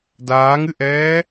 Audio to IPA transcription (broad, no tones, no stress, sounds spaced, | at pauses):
d aː ŋ ɨ ʔ ɛː